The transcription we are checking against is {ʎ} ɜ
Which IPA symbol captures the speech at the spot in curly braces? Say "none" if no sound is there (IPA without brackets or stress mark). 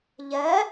ʎ